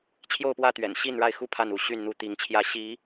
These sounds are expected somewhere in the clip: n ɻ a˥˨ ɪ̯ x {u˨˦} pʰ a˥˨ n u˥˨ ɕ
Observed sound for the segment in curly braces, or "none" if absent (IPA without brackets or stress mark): u˥˨